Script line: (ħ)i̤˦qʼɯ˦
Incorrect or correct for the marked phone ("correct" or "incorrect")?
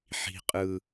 correct